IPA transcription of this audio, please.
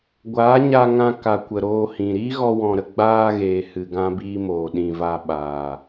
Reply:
ɡʷ aː˨˦ ɲ a˧ ŋ ã˧ k a˨ kʷ ə˨ ɾ oː˧ h ĩ˨ ɾ iː˦ ɣ ɔ˧ w ɔ̃˨ ɾ ə˨ ɡ͡b aː˧ ɣ eː˨ h ɨ˧ ɡ ã˦ b iː˦ m oː˨ ɗ ĩ˨ v a˧ ɓ aː˨

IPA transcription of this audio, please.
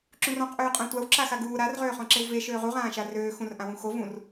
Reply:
ǁ ũ r ɔ̃ q ʔ øː qʼ ã tʷ a w ǁ a x a ɡ uː ɾ a r ʁ øː χ ɔ̃ ǁ e w v e ʃ øː ʁ u ʁ ãː ʃ a r øː x ũ r ʔ ã w ũ x o v ũ r

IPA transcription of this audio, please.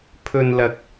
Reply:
pʰ ɵ˨ n l ɐ˨ k̚

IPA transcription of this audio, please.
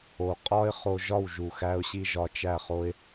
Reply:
o˨ qʼ ɒ˦ ɪ̯ χ o˧ ʒ ɒ˦˨ w ʒ u˨ x æ˧ ʊ̯ ɕ i˧ ʒ ɒ˧ t͡ʃ æ˦˨ χ o˦ ɪ̯

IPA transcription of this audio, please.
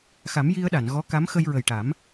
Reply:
x a˨˩˦ m j i˧ ə̯ ɗ a˨˩˨ n ɣ ɔ˧˥ k a˧˥ m x ə˧ j ɹ ə˨˩ j ʈ a˨˩˦ m

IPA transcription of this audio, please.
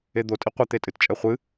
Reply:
e d̪ o tʼ i qʷ ɛ t̪ e tʼ ɨ t t͡ʃʼ ɛ χʷ ɨ

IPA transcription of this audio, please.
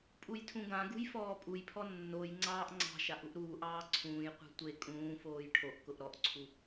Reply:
pʼ u j tʰ ũ ɡ ã ɡ ṳ j f ɔː pʼ u j pʰ ɔ nː o j ŋ͡ǀ ɑː ʔ ŋ͡ǀ ɑ̤ ʃ a ʔ u ʔ ɾ uː ʔ ɑː ǀʰ ũː j qʷ e̤ tʷ e kʼ ũː f oː j ʈʰ o ʔ k ʊ ʔ ɾ ɔ ʔ ǀʰ u

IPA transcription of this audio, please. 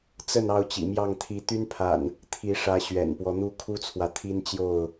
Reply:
t͡s ə˥˨ n ɑ˥˨ ʊ̯ t͡ɕ ḭ˨˩ m j ɑ˥˨ ŋ t̪ʰ i˨˦ t̪ y˦ n pʰ a̰˨˩ n | t̪ʰ i˨˦ ʂ ä˨˦ ɕ ɥ ɛ̰˨˩ n p w ɔ˦ n̪ u˦ kʰ u˦ t͡sʰ w ä˨ t̪ʰ i˦ n t͡ɕ j o˥˨ ʊ̯

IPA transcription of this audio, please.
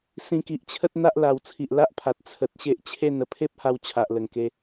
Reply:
s ĩ˧ k i˨ ʔ t͡ɕʰ ə˦ t̚ n̪ a˦ ʔ l a˧ w t͡sʰ i˨ ʔ l a˦ ʔ pʰ a˨ t̚ t͡sʰ ə˨ t̚ ɕ e˦ ʔ t͡ɕʰ e˥˧ n ə˥˧ pʰ e˦ p̚ h a˧ w t͡ɕʰ a˨ ʔ l ə˨˩ ŋ k e˧

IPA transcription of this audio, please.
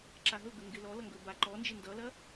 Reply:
ǁ a ɦ ɵ ɡ ə ŋ ɡ ɪ l ɔ l ʌ ŋ ɡ ɵ b a ǃ ɔ n d͡ʒ ɪ n d ʌ l ɐ

